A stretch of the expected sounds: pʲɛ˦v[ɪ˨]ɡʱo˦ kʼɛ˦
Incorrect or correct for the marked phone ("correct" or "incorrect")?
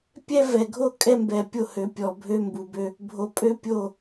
incorrect